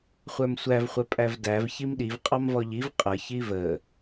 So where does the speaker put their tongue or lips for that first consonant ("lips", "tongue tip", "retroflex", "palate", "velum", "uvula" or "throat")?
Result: uvula